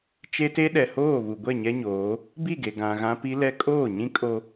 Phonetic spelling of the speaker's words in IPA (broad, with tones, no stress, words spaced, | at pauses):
t͡ʃe˦te˦ ɗɛ˨hoː˦˨βu˨ɡʷɛ˦˨ ɲɛ˦ɲoː˨˦ | bi˦˨ɡe˨ ɡã˨ɣã˦pi˦ lɛ˦ kʼoː˦˨ɲĩ˦ kʼo˦